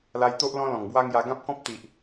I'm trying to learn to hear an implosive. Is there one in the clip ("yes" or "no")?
no